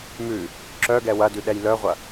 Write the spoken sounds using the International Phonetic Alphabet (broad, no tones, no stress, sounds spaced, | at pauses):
m ʉ | ǁ œ ɡ ɛ w ɐ d ʉ ɗ ɛ j l œ ʁʷ ɐ